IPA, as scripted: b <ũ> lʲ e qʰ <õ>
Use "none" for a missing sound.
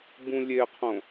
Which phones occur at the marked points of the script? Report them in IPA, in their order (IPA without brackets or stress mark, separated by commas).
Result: ũ, õ